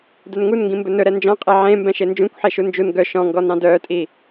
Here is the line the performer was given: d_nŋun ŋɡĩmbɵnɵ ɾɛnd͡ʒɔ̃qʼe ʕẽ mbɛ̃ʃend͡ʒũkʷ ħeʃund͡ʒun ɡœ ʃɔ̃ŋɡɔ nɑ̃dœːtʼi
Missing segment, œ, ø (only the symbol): œ